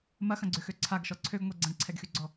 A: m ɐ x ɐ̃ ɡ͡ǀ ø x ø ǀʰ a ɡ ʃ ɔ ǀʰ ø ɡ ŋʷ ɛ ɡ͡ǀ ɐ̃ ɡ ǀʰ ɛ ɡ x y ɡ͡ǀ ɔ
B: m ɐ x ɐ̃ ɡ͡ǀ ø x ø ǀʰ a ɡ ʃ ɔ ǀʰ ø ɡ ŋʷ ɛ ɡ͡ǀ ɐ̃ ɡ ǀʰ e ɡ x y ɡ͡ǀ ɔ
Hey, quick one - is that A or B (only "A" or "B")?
A